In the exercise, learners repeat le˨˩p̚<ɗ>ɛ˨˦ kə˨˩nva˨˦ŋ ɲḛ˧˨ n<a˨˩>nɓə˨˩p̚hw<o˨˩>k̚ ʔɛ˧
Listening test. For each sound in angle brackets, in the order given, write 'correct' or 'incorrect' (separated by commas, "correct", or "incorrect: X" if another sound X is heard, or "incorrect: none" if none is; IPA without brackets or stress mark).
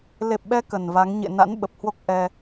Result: incorrect: ɓ, incorrect: a̰˧˥, incorrect: o˦˥